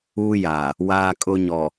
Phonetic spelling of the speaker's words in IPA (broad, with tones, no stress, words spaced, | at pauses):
uː˦jaː˨ | waː˦kʼʊ˦ɲɔ˨